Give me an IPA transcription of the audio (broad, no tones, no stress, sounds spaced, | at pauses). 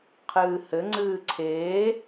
qʰ ɨː h ɘ ŋ͡ǀ ɨː ǀʰ eː